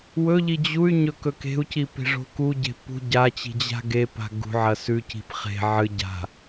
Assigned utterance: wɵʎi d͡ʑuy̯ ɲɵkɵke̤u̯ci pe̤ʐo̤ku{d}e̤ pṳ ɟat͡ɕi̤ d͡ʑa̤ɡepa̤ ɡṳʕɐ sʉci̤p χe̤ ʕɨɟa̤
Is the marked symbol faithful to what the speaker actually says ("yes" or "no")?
no